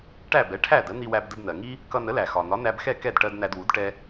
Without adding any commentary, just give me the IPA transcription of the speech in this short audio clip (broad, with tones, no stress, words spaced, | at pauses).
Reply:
ʈæ˥˩bɛ˩˥ ʈʰæ˥˩ də˩˥n̪i˧wæ˧b də˧bn̪ɜ˩ŋi˥ | kʌ˧nə˩˥læ˩xɒ˩ n̪ɒ˩˥næ˧bxɛ˥˩ kɛ˥˩dʈɜ˧d n̪æ˧dwu˩˥d ʈɛ˧